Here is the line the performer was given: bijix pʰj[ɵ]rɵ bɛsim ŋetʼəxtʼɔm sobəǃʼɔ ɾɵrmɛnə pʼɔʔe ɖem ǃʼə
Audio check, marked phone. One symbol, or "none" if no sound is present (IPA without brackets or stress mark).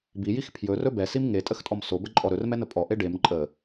ɵ